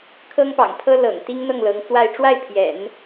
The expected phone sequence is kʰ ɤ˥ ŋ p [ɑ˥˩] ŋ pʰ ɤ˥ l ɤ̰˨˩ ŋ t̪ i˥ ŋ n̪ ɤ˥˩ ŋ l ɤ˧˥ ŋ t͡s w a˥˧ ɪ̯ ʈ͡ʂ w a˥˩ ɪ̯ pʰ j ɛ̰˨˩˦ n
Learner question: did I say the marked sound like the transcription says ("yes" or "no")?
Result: no